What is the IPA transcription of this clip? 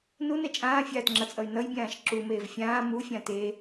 n u n ɛ t͡ʃʼ ãː fʲ aː t ŋ͡ǁ ʌ t͡sʼ ʌ y̯ n ʌ j bʲ ãː ʃ ǁ u m eː v fʲ ãː m u fʲ ã t e

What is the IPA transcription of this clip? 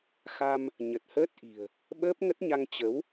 x a˧ m | ɲ ə˨˩ t̚ h əː˦˥ t̚ ʔ i̤˨˩ ə̯ | ɓ əː˦˥ p̚ ŋ ə˦˥ t̚ ɲ a˧ ŋ t͡ɕ ə˨˦ w

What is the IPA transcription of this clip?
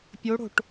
pʲ o ɽ o̤ ʈ

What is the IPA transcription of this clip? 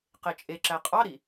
q e t͡ʃʼ e ǁ æ qʼ ɑ ɾ i

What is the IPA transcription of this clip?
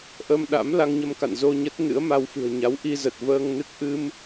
ʔ ə˧ m ɗ a̰˧˥ m l a˧ ŋ ɲ ə˧ m k a̰˧˨ n z o˧ ɲ ə˦˥ t̚ n ɨ̰˧˥ ə̯ m a˧ w f ɨ̤˨˩ ə̯ ɲ a˨˦ w ʔ i˧ z ə˨˩ t̚ v əː˧ ŋ n ɨ˦˥ k̚ ʔ ɨ˧ m

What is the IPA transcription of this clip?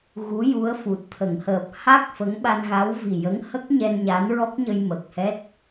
ɣ u˧˥ j u˧˥ ə̯ f u˨˩ t̚ t̪ʰ ə˨˩˨ ŋ h əː˨˩ p̚ h a˦˥ k̚ f ə˧˥ ŋ ɓ a˧ n ɣ a˧˥ w v i˨˩ j ə˧˥ ŋ h ə˦˥ k̚ ɲ ɛ˧ n ɲ a˧˥ n ɹ ɔ˦˥ k̚ ɲ ə˧ j m ə˨˩ k̚ h ɛ˦˥ t̚

